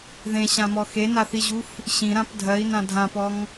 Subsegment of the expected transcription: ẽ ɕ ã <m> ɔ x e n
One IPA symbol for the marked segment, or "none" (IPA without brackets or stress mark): m